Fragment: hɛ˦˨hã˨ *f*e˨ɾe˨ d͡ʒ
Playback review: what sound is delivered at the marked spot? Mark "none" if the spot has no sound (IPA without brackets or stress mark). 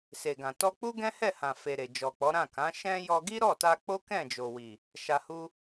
f